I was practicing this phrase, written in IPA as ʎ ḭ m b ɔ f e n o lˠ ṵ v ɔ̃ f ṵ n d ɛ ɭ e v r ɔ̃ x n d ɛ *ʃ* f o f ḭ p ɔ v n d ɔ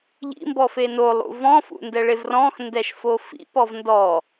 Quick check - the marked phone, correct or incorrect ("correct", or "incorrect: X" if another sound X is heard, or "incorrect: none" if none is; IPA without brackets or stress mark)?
correct